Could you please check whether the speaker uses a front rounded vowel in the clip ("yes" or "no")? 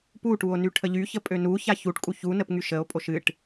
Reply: yes